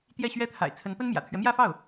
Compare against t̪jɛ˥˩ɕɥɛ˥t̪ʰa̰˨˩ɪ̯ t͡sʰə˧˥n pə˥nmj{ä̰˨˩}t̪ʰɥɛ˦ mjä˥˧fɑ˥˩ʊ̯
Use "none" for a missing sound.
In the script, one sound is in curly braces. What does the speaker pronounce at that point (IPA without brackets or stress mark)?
ä̰˨˩